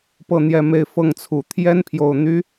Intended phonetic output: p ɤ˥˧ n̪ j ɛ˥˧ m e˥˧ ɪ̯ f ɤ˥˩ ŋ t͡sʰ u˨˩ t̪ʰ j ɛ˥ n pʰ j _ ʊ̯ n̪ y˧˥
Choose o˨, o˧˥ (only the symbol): o˨